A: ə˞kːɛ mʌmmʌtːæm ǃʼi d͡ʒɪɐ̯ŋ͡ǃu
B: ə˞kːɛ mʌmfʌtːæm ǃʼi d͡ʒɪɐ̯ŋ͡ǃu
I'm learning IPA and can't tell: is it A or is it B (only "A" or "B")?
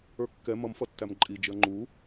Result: B